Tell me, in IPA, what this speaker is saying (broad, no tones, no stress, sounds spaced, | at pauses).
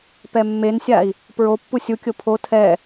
p ɛ mː e n sʲ a i̯ | p ɹ o pː u sʲ u kʲ o pʰ o tʰ ɛ